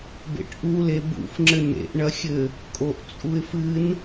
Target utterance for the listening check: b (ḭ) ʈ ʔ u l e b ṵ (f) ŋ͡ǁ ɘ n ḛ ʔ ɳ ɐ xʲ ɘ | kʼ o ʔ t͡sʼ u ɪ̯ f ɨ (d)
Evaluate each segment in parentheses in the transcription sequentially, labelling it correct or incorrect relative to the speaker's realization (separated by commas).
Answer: incorrect, correct, incorrect